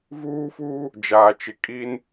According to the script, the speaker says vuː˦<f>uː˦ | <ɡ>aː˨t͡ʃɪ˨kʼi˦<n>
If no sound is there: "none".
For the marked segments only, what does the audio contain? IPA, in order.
f, d͡ʒ, n

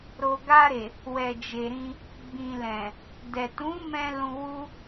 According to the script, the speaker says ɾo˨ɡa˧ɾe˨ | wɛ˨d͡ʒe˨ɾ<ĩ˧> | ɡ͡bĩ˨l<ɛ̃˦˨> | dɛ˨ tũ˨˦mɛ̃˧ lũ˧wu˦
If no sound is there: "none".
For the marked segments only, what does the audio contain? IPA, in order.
ĩ˧, ɛ̃˨

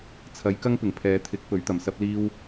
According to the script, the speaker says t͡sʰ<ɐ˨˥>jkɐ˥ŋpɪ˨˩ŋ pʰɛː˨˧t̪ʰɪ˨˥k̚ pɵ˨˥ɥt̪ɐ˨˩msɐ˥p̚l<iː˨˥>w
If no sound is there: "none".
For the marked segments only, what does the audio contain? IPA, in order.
ɐ˨˥, iː˥

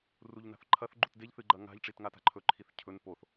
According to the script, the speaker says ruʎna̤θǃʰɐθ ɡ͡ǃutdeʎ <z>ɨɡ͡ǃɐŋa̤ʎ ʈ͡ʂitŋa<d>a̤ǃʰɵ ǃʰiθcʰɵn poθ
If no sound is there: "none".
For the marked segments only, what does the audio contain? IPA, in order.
θ, t

